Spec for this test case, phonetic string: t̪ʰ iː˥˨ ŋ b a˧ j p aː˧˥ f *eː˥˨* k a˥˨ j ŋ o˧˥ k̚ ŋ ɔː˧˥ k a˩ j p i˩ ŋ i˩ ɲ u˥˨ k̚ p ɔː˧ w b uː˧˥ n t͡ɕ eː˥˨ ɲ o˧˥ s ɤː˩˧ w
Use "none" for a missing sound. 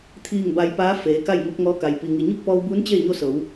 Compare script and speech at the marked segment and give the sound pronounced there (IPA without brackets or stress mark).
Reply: eː˩˧